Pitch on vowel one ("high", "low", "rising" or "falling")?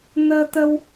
high